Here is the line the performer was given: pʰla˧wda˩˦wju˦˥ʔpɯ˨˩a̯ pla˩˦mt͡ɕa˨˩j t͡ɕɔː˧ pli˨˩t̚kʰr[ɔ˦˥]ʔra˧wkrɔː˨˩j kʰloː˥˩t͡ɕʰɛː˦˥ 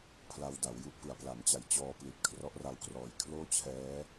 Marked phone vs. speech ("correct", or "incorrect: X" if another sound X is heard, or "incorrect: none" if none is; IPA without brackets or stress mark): correct